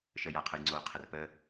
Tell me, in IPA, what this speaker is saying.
ʃəjaqʰəjŋ͡ǀoː qʰərpə

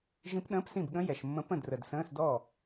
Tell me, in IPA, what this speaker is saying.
ʒĩ˧˥pɗə̃ː˧˥˧psĩ˥˩bɠə̃˧˥ jɛ˨ʃmːə̃˧˥pə̃˥˩ drə˨dsə̃ː˧˥˧sdɔ˥˩

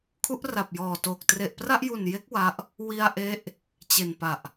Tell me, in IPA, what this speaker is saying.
kʰu˦˥ʔra˨˩p̚jɔː˨˩toː˨˩k̚ tre˨˩ʔpra˥˩ʔju˨˩nje˦˥k̚ wa˦˥ʔ | wi˧a̯ʔe˦˥ʔ | t͡ɕe˨˩npa˨˩ʔ

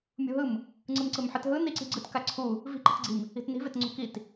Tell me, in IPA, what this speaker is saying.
mʲṳɦɯm | ŋ͡ǀɯmǀɯmħɯtɦɯ niǀi̤ɡ͡ǀɯt kaǀʰu | vi̤ ǃi̤tɡ͡ǀi̤m | i̤tni̤ vetŋ͡ǀṳkit

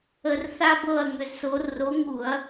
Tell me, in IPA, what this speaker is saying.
ə˧r θa˥bɤ˥˧ɐ̯ŋʏ˧zso˨˥ ro˨˥ŋu˧˩˧ɐ̯

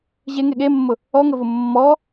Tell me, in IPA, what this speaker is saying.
ʑeŋe ɠemːʊ | ɔŋəvʊ mːɔ

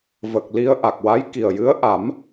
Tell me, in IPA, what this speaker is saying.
və˨˩k̚li˧ə̯ ʔa˨˩k̚wa˧˥jki˨˩ə̯jɨ˧˥ə̯ ʔa˨˩˦m

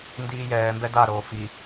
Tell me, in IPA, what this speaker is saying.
ndiːjɛːmbɛ daɾoː fi

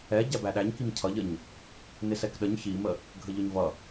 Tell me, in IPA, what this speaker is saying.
ɛ ɟæbæɗæɲ kimcʰʌʎəɲ | nɪsɛkɗəɲ çimə | ɡʱəʎʊɲvʌ

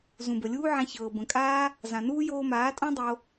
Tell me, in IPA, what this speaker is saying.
zũ˨bə˨lʲuː˦ʕã˧ çɤː˨bə̃˨kʼaː˦ | zã˨nuː˦ joː˧maː˨˦tʼõ˦dˤo˧

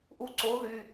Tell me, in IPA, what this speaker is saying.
ʔu ǀo ðy

